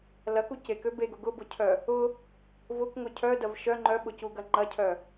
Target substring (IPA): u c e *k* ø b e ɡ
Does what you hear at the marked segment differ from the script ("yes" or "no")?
no